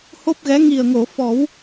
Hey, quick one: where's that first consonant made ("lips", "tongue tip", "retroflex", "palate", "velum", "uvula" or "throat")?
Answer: throat